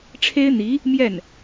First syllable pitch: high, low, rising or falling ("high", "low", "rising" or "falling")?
high